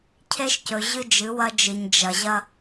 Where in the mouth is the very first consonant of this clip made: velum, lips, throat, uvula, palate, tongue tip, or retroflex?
palate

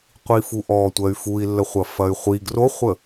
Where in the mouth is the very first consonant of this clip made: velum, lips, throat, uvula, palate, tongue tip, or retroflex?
uvula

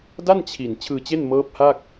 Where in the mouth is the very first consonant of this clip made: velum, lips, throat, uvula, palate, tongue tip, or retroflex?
tongue tip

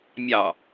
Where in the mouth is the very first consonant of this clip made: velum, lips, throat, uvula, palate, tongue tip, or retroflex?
lips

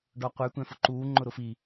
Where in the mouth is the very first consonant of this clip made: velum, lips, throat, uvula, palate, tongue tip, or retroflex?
retroflex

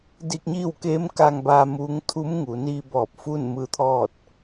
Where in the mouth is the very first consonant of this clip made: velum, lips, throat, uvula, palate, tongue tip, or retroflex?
tongue tip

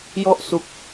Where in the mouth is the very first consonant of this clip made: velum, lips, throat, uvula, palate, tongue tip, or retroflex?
palate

